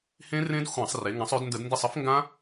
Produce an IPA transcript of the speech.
h ẽ˦˥ r ẽ˦˥ d xʷ ã˧˩˧ sˤ r e˩˧ ŋ ã˩˧ sˤ ø˩˧ d n d ə˧˩˧ d n d e˦˨ sˤ ə˦˥ f ŋ ɡ ã˦˥

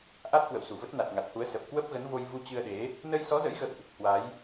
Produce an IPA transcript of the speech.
ʔ a˦˥ t̚ k w ə̰˧˨ w s u˧˩ v ə˦˥ t̚ n a˨˩ t̚ ŋ a˨˩ t̚ h u˨˦ ə̯ s ə˨˩ p̚ k w ə˦˥ p̚ ɣ ə˨˦ n v o˧ j v u˧ t͡ɕ ɨ˧ ə̯ ɗ e˨˦ | n ə˧ j s ɔ˨˦ z ə̰˧˥ j ɣ ə̰˧˨ w ʔ | h w a˨˦ j

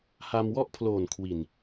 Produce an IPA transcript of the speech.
h a˧ m w ɔ˥˩ ʔ pʰ l oː˨˩ n kʰ w i˨˩ n

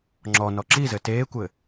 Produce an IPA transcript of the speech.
ŋ͡ǁ ɔ n ɔ ǁ i z ɘ t eː kʷ ɘ

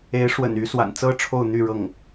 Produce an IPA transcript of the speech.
e˧˥ ɪ̯ ʂ w ə̰˨˩ n y˧˥ s w a̰˨˩ n t͡s ɤ˥ ʈ͡ʂʰ o˥˧ ʊ̯ n̪ y˥˧ ɻ ɤ˥˩ ŋ

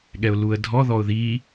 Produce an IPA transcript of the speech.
ɠ ɛ ʊ̯ l u ə̯ dʱ ɔ ð ɔ ʊ̯ ð i

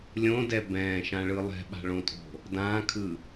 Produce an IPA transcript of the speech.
lʲ õ d ɛ b ɛ̃ː ʃ ã ɭ ɯ lˠ ɛ̤ ɓ a̤ ɭ õ tʼ o̤ | d ãː kʰ ɯ

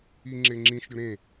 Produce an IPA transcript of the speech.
i ŋ͡ǁ e ŋ͡ǁ ĩ ʃ ɾʲ o ɾ ẽ

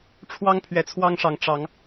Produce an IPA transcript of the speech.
ʈ͡ʂʰ w ɑ˦ ŋ pʰ ɥ ɛ˨˦ t͡sʰ w ɑ˦ ŋ ʂ ɑ˨˦ ŋ ʈ͡ʂ ɑ˨˦ ŋ

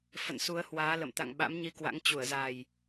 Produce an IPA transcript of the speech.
f ə̰˧˨ n s u˨˦ ə̯ h w aː˨˦ l ə̰˧˨ m t̪ a̰˧˨ ŋ ɓ a̰˧˥ m ɲ i˧ k w a̰˧˥ ŋ t͡ɕ u˧˩ ə̯ z a˨˩ j

